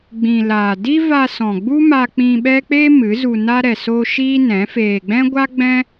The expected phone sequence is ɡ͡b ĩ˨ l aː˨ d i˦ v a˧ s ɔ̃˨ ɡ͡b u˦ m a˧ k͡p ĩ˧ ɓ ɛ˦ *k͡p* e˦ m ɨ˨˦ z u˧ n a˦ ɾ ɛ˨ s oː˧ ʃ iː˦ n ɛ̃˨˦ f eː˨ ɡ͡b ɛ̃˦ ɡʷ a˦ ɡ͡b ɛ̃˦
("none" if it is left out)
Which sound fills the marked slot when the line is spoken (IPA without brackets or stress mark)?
k͡p